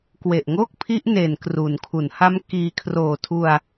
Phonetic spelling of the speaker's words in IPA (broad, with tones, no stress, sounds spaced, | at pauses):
k w e˨˩ ʔ ŋ o˥˩ k̚ pʰ i˦˥ ʔ n e˨˩ n k r u˩˦ n kʰ u˩˦ n h a˦˥ m k iː˧ kʰ r oː˨˩ tʰ u˧ a̯